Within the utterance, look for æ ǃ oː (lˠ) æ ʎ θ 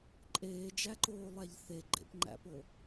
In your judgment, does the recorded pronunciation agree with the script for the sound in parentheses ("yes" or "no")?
yes